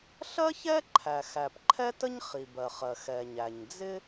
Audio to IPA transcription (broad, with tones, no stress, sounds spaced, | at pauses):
ɬ ɜ˥ ç ɛ˥ ǃʰ æ˩ x æ˩ p ǃʰ ɛ˥ t ə˥ ɲ χ i˩ b ɜ˩ χ ɜ˩ x ɛ˩ ɲ æ˩ ɲ d͡z ɪ˥